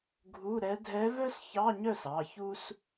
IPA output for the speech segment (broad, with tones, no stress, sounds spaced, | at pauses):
ɡʱ u˧˥˧ ɾ ɛ˧˥ dʱ ɛ˧˥ v œ˥ s ç ɑ˧˥˧ ɲ œ˥˩ s ɑ˩˧˩ ç u˥ s